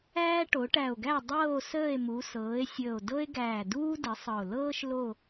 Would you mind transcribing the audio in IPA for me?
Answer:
æː˦ ʈ o˩˧ ʈ æ˨˩ o̯ ɡ æ˦˨ dˤ ɤː˦˨ o̯ s əː˦˨ e̯ m u˩˧ s ɤː˩˧ e̯ sʲ əː˨˩ o̯ d ɤ˦ e̯ ɡ æː˨˩ d uː˦ d ə˩˧ sˤ ɤ˨˩ o̯ l ɤː˦ ʃ l o˦˨

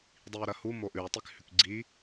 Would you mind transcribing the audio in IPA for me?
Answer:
dˤ i u̯ ɾ ɐ h u m o ʔ ʉ u̯ tˤ i k h ʉ k ɡ͡ǀ i

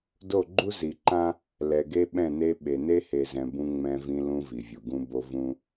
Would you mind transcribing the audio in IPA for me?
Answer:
d o˦˨ ɡ͡ǃ u˦ z i˨ ǃ ã˦ | l ɛ˨ ɡ e˦ ɓ ɛ̃˦˨ n e˦ ɓ e˨ n e˦ h e˨ z ɛ̃˨ b ũ˦ ŋ͡m ɛ̃˦ v ĩ˦ l ũ˦ v i˨ vʲ u˨ ɡ ũ˦ b o˦ v ũ˦

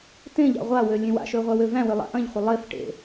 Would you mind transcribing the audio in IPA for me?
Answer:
t ẽ ʎ a̰ ʁʷ a w ø lʲ ẽ w a̰ ʃ ø ʁʷ æ w ø v æ̃ w ø lˠ a̰ ʔ ɐ̃ ʎ χʷ ɪ lˠ e f ʈ ḛ

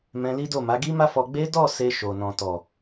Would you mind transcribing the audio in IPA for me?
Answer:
m ɛ̃˧ l i˦ d o˦˨ m a˨˦ ɡ i˦ m a˦ f ɔ˧ ɡ͡b e˦ d ɔ˦˨ s e˧ ʃ o˨ n ɔ̃˨ t ɔ˨

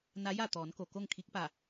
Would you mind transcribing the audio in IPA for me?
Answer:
n a˧˥ j a˥˨ t̪ ɔː˩˧ n k o˩ k o˥˨ ŋ kʰ i˧˥ k̚ p a˧˩

